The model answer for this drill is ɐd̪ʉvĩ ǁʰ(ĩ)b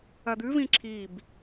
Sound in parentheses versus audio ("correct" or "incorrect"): incorrect